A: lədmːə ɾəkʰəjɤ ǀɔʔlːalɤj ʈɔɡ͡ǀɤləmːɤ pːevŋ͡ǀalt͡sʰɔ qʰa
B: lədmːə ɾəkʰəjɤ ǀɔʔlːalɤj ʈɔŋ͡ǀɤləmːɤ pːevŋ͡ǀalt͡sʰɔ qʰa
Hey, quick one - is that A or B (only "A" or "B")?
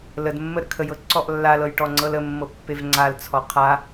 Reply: B